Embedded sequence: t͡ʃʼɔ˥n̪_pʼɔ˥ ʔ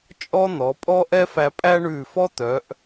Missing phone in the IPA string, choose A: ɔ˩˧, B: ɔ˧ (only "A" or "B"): A